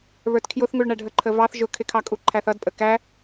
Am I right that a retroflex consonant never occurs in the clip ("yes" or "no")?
no